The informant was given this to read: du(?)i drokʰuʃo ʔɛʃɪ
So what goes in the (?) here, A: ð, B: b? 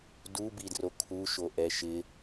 B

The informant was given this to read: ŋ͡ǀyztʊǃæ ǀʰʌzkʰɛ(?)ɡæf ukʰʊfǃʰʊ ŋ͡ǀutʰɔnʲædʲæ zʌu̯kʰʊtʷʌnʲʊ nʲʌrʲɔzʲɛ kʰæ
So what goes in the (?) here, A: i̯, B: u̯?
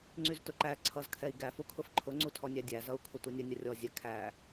A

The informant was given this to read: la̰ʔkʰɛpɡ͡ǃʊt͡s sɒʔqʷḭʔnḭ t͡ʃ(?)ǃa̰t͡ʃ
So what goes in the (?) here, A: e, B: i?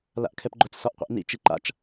B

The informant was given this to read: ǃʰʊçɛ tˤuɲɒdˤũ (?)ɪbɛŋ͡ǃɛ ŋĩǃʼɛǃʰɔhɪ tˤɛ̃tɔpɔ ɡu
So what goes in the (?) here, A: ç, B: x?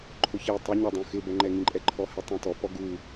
B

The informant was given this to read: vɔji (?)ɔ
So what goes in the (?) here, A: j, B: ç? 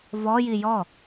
A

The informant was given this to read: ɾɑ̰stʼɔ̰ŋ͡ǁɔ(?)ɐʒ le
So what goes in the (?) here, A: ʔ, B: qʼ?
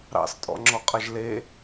B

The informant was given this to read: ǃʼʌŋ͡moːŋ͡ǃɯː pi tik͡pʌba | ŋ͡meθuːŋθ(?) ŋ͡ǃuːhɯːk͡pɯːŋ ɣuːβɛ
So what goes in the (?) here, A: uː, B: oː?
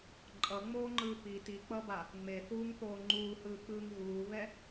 B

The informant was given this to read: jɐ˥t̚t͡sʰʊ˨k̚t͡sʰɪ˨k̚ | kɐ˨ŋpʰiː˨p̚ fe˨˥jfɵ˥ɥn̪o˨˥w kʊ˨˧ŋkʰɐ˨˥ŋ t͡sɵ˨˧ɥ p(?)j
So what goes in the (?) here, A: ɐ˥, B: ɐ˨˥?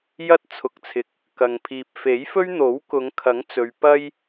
A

